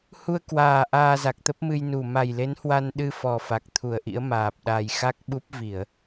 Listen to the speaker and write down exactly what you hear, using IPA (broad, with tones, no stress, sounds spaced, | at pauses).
h u˧ ə̯ k w aː˨˩ ʔ aː˧ z a˨˩ k̚ t̪ ə˦˥ p̚ m ɨ˧ j n u˧˩ m a˨˩ j l e˨˦ n h w a˧ n ɗ ɨ˧ f ɔ˨˩ f a˨˩ k̚ t̪ʰ u˧˩ ə̯ ʔ ḭ˧˥ ə̯ m aː˨˩ p̚ ɗ a˨˩ j x a˦˥ k̚ ɓ u˦˥ p̚ v i˧˩˨ ə̯